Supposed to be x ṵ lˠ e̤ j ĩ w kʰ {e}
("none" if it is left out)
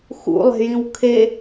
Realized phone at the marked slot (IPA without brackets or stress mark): e